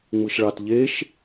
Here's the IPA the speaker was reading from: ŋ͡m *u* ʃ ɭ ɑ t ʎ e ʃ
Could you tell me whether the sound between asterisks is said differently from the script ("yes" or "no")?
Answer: yes